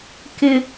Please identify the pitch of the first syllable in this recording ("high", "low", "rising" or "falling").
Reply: low